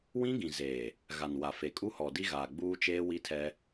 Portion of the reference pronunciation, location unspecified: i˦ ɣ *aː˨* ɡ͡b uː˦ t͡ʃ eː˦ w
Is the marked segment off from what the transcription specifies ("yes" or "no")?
no